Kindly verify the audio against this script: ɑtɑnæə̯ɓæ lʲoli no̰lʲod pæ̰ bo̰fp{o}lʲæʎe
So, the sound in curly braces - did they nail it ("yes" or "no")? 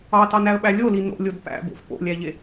no